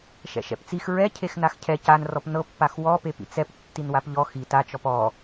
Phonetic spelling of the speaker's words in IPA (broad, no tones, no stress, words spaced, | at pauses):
ʃɛ̰ʃɛ̰pt͡six ɹɛ cʰexnaxcʰɛ canrɔp nɤpːax wɔpepḭ t͡sɛp tːinwapʎɔ xi tat͡ʃɔp ɔ